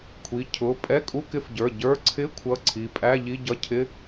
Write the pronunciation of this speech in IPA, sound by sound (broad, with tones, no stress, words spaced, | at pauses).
kʷʰi˩˧˩ cʰʊ˩˧˩ pʼɛ˧˥˧kʼu˧˥˧kɪ˧˥˧fɟə˞˩˧˩ ɟə˞˧˥˧ ǀʰɪ˧˥˧ kʷʰʌ˧˥˧ǀʰi˩˧˩ pʼæ˧˥˧ʎi˧˥˧ɟʌ˧˥˧cʰɪ˧˥˧